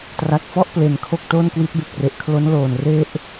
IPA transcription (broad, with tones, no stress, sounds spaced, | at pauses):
t r a˨˩ k̚ f ɔ˥˩ ʔ p l e˨˩ n kʰ o˥˩ k̚ t oː˥˩ n k w i˦˥ t̚ b e˨˩ k̚ r e˨˩ ʔ kʰ l o˦˥ n l oː˨˩ n r e˥˩ ʔ